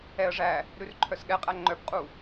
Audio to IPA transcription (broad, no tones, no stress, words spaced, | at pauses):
ɛə̯ʐæ | ɾʉrǃʰœsɠɛqʼæ ŋ͡ǃœbqʼu